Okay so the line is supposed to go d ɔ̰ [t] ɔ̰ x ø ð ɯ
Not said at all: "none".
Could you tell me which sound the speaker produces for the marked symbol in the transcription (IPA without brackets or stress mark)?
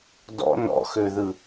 n